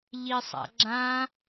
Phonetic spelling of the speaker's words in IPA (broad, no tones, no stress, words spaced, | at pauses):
ʎisˤa̰ɡ͡ǁã